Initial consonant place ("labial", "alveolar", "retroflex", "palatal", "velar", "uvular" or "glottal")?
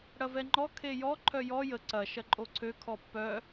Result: retroflex